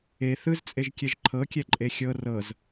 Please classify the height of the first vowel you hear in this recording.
mid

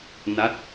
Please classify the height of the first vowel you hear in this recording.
low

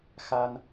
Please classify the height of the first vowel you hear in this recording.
low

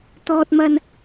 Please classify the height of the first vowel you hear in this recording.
mid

